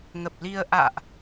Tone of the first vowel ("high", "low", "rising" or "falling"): low